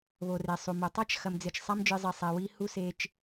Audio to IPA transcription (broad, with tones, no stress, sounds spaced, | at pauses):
β o˩ r e˩ sˤ u˩ m o˩ tˤ a˥ t͡ʃ x ɐ˨ m d͡z ɪ˨ t͡ʃ sˤ a˦ m d͡ʒ ɨ˨ zˤ i˩ sˤ ɛ˨ w i˦ h u˥ s e˦ t͡ʃ